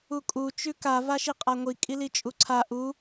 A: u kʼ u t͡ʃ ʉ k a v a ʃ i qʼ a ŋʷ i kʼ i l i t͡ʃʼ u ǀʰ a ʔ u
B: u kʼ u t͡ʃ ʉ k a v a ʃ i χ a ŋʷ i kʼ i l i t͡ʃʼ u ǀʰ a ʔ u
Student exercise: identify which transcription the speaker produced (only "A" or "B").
A